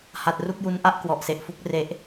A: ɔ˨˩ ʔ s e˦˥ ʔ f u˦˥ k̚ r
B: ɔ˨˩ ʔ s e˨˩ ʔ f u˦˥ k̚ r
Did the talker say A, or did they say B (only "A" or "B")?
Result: B